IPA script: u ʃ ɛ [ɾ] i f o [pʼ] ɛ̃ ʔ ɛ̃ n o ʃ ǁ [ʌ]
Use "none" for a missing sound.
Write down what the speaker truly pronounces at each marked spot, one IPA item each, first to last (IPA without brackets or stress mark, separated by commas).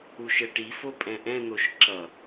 ʈ, pʼ, ʌ